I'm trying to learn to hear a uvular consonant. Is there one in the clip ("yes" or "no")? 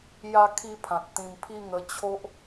no